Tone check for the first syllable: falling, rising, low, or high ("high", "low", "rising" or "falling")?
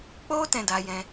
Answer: high